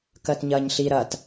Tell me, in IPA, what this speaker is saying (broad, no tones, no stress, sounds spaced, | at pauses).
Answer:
k ɜ t ɲ ɐː ɲ ɬ i ɾ ɐ t